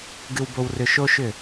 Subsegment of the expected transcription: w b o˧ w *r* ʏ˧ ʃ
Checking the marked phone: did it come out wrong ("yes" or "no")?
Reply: no